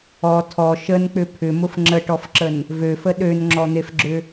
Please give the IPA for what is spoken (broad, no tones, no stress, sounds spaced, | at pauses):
ɔ tʰ ɔ ʃ ə n k͡p ʏ pʰ ʏ m ʊ f ŋ͡ǁ ə ʈ ɔ f ǁ ə n | v ø f ə ɗ ø n ŋ͡ǁ ɔ n̪ e f ɡ͡ǁ ʏ